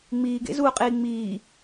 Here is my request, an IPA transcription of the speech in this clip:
ŋ͡miːɡḛzuːqʼiː ŋ͡miː

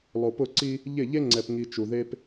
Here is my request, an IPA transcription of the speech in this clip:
lˠo˨pʊ˦˨ǀi˦ | ʎɪ˦˨ ʎe˦ŋ͡ǀɛ˨pŋi˨ t͡ʃu˨ðe˦p

